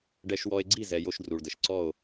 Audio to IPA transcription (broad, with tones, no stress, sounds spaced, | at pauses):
ɖ ɛ˦ ʃ w ɔ˦ e̯ ɡ͡ǀ i˦˨ z ɛ˨ j o˦ ʃ d r u˨ ɭ d ə˨ ʃ ǀ ɔ˦˨ o̯